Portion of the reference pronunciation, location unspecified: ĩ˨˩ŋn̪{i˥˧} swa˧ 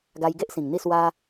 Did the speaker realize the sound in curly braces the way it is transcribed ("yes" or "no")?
yes